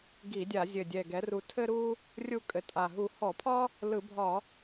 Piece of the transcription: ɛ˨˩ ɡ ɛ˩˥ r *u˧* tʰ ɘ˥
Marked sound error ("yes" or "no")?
no